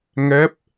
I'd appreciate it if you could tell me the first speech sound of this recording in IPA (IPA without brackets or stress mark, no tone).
ŋ